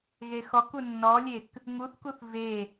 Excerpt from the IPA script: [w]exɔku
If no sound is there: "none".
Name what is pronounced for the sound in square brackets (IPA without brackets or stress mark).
ɣ